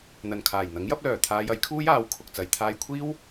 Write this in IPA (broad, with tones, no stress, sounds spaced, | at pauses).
n̪ ɐ˨˩ n kʰ aː˨˩ j n̪ ɐ˨˥ ŋ j ɐ˥ p̚ l œː˨˩ t̪ʰ aː˧ j ɐ˨˥ j kʰ uː˥ j aː˨˥ w kʰ ʊ˨ k̚ t͡s ɐ˨˧ j t̪ʰ aː˧ j kʷʰ iː˥ w